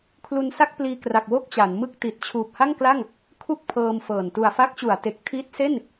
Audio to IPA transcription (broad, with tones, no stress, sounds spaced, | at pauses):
kʰ l u˧ n s a˥˩ k̚ p l iː˧ k r a˨˩ k̚ w o˥˩ k̚ t͡ɕ a˩˦ n m ɯ˥˩ k̚ t i˨˩ t̚ t͡ɕʰ uː˨˩ p̚ h a˥˩ ŋ k l a˥˩ ŋ | kʰ u˥˩ k̚ pʰ ɤː˧ m f ɤː˨˩ n t u˨˩ a̯ f a˦˥ k̚ t͡ɕ u˩˦ a̯ t e˨˩ k̚ tʰ i˦˥ t̚ s e˥˩ n